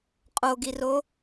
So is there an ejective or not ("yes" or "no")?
yes